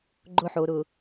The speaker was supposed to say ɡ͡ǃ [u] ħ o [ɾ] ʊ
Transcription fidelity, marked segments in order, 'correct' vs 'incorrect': incorrect, correct

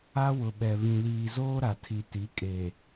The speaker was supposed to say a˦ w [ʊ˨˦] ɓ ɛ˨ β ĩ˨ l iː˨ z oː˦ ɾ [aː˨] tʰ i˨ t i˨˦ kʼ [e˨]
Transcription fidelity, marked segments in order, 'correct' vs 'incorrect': incorrect, incorrect, correct

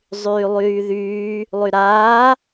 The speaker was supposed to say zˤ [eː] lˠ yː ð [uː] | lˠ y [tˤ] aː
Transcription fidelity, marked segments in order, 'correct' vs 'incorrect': incorrect, incorrect, incorrect

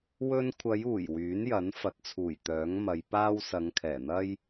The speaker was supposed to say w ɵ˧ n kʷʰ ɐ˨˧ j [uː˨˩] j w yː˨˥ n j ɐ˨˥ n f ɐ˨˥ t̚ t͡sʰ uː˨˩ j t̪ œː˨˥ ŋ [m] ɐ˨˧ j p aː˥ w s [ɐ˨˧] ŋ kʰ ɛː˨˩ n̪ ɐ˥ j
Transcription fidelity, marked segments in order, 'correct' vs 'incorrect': correct, correct, correct

